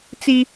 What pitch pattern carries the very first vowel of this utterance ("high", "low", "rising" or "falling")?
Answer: high